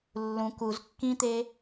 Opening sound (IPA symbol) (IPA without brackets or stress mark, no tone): lː